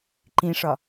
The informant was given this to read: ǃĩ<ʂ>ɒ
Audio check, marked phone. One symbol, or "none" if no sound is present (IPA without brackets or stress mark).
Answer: ʂ